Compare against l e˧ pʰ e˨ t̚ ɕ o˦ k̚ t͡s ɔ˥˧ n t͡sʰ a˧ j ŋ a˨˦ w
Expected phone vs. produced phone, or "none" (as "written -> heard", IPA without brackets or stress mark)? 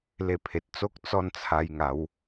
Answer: ɕ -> t͡s